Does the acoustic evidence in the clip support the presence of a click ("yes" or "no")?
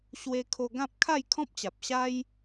no